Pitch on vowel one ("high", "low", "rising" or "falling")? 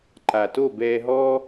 low